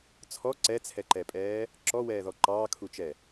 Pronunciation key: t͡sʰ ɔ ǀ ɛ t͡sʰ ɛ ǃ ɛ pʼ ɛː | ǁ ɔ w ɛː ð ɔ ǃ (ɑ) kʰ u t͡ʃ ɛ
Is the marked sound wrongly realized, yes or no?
yes